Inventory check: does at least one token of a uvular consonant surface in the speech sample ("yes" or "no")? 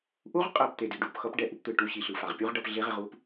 yes